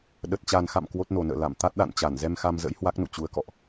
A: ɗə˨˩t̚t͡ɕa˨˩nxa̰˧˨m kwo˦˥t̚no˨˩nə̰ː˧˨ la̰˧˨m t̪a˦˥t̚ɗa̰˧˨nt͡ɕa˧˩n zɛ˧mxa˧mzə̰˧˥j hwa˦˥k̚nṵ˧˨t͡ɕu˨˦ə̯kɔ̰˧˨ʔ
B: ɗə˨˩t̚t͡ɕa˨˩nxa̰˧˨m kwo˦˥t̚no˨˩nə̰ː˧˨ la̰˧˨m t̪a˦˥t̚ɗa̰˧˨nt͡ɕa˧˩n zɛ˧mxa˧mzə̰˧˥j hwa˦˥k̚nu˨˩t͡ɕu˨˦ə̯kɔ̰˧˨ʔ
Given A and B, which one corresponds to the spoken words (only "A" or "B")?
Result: A